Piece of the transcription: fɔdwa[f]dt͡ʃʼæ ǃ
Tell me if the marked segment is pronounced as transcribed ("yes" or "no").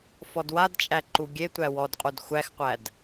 no